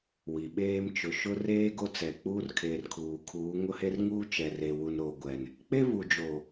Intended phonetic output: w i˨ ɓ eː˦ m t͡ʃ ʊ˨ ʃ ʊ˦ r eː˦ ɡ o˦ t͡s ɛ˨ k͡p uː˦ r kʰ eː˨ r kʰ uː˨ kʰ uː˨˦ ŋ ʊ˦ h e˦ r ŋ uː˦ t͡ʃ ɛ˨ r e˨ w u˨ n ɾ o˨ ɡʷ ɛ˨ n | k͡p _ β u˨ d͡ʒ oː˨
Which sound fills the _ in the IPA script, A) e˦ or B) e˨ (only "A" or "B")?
A